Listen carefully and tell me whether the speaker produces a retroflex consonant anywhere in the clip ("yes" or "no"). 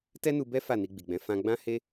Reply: no